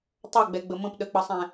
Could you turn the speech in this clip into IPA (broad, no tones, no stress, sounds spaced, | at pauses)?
tˤ ʌ ɡ͡b ɛ ɡ͡b ə m ə̃ p ɗ ə k͡p ʌ sˤ ɛ̃